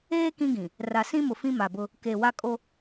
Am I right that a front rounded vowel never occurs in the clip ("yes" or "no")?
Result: yes